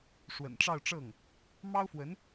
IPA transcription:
ʂ w ə̰˨˩ n ʈ͡ʂ ɑ˥˧ ʊ̯ ʈ͡ʂ ɤ˥˩ ŋ | m ɑ˥ ʊ̯ f w ə˧˥ n

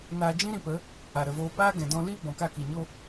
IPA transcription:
n aː˧ d͡ʒ ĩ˦ ɾ ĩ˧ p ə˨˦ | a˨ ɾ ə˨ v oː˧ p aː˦ ɡ ɛ̃˨ d ɔ̃˧ l iː˦ b ɔ̃˨ k a˦˨ k i˨ ɲ o˦

